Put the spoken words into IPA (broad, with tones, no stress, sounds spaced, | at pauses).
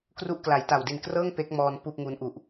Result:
k r u˥˩ ʔ k l a˩˦ j t a˨˩ w d i˨˩ n k r ɤː˥˩ ŋ p e˦˥ k̚ m ɔː˧ n p uː˥˩ p̚ ŋ uː˦˥ n ʔ u˨˩ ʔ